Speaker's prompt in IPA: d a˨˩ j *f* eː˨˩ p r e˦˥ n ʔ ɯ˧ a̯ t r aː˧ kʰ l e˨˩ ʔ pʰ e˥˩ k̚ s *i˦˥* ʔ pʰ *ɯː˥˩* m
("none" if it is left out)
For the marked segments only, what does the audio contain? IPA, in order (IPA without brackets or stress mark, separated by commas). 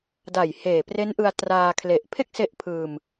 h, e˦˥, ɯː˧